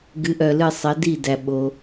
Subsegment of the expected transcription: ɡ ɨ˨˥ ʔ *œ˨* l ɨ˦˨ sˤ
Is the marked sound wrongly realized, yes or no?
no